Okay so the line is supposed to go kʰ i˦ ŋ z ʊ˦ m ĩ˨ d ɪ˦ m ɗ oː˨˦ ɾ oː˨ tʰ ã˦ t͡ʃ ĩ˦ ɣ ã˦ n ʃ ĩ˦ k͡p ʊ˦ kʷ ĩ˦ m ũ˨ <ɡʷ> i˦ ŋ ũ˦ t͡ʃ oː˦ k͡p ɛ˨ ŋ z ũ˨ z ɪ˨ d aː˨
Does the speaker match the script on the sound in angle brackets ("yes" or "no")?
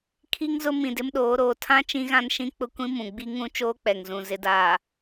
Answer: no